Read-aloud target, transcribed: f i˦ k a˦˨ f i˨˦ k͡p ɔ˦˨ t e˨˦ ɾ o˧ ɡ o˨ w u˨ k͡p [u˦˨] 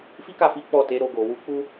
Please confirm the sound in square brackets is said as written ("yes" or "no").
no